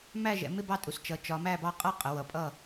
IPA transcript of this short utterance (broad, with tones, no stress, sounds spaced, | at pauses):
m æ˥˨ ʒ ɛ̰˩˧ m ɪ˥˨ b ɑ˥˨ tʼ u˩˧ s t͡ʃ ʌ˩˧ t͡ʃ ɒ˩˧ m æ˥˨ b ɑ˥˨ qʼ ʌ˥˨ qʼ ə˩˧ w ʌ˩˧ pʼ ʌ˥˨